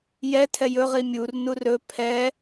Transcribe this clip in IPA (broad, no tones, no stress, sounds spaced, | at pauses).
j ɛ tʰ ɛ j ɵ ʁ i mʲ u r n u r ɵ pʰ ɛ